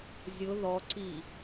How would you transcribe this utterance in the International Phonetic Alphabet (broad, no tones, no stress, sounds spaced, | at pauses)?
zʲ ʊ ð ɔ ǀ i